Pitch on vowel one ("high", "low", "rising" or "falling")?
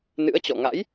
rising